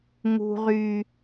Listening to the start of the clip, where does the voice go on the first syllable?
low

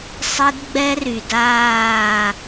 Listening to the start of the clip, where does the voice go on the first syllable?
high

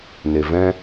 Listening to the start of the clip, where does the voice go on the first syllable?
low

